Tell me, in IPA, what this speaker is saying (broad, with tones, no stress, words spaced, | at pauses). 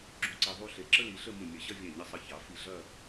ɡ͡ǁũ˧ǀi˧ðˤu˥˧ɬe˧ ǁə˥li˩˧ɬə˥˧ mũ˧˩mʲɐ˧˩ɕɐ˥˧ vʲɛ̃˧˩ɲɪ˧sˤə˧˩ çɑ˩˧fi˧˩ɮɐ˥˧